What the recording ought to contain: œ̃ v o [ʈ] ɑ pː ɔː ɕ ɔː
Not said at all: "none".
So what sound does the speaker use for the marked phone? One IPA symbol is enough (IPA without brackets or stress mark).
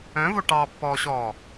ʈ